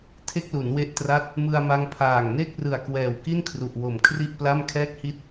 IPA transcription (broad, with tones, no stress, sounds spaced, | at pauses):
tʰ e˥˩ k̚ l u˩˦ n w e˦˥ ʔ t r a˦˥ t̚ | m ɯ˧ a̯ m a˦˥ ŋ pʰ aː˨˩ ŋ n e˥˩ k̚ r ɯ˨˩ a̯ k w ɛː˨˩ w k i˥˩ n kʰ r u˨˩ ʔ w o˨˩ m kʰ r i˥˩ ʔ p l a˥˩ m kʰ ɛː˥˩ k̚ h i˥˩ t̚